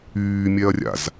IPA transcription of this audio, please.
yːmʲɛɐ̯rʲa̰z

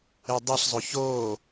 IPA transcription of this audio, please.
edˤiɬzˤo çoː

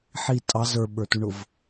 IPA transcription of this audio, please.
ħi tʼɑ zə˞ɓə˞tuɳʊv

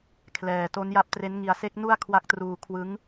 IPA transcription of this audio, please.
kʰlɛː˨˩ to˦˥nja˦˥p̚tre˦˥nŋi˧a̯ se˦˥k̚nu˥˩a̯kʰwa˦˥k̚ truː˧ kʰwɯ˦˥ŋ

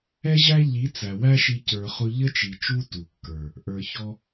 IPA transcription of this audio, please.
ɛ˦ʑæ˦ ʎi˨˦t͡sæ˨wæ˦ʃi˧ cə˞˧χʊ˦ ʎə˦t͡ʃi˨ t͡ʃu˦tu˨kːə˞˨ | ʔə˞˧çɔ˦

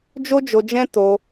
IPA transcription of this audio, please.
d͡ʒo˦d͡ʒo˧d͡ʒɛ̃˦ to˧

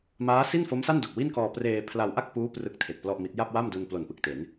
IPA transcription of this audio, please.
maː˦˥si˥˩nfo˦˥msa˥˩n do˨˩k̚wi˥˩nkɔː˧ preː˧pʰla˧wʔa˥˩k̚puː˦˥ prɯ˦˥k̚tʰe˨˩k̚ plɔ˥˩ʔmi˦˥t̚ ja˥˩p̚wa˥˩mdu˧n plo˨˩npɯ˨˩k̚te˩˦n

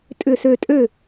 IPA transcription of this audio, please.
tʼʏ˧˩sø˧˩tʼø˥˩

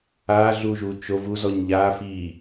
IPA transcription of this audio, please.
aːɮuːʒuː t͡ʃo vuzɔɲ ʎaːfiː

